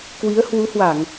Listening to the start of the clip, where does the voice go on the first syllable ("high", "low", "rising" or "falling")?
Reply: rising